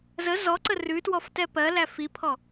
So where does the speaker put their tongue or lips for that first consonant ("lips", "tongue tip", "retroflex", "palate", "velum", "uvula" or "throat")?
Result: tongue tip